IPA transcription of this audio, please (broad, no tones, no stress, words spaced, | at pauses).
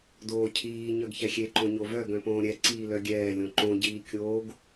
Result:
doːcʰiː ɲœɡçɛxʲe ǃõɲovœ ɡœ̃põːɾʲɛ ǀiːlœɡʲɛː lʲõǃõ ɟiːkʲoːɡ